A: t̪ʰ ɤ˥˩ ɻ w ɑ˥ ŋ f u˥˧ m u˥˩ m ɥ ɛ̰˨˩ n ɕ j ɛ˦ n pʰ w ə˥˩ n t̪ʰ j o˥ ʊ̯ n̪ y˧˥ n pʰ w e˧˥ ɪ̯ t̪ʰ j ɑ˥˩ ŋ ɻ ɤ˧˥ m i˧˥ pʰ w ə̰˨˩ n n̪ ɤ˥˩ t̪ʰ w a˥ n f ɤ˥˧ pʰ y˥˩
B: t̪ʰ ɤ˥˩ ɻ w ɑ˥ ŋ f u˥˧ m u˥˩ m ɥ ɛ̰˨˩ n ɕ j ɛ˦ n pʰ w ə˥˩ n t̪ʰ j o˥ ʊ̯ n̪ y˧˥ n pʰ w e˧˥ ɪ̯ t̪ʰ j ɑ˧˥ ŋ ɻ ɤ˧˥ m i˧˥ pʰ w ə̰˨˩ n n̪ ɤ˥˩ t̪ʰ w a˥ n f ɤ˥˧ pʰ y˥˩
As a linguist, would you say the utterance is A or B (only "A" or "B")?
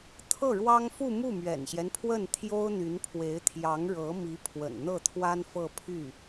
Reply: B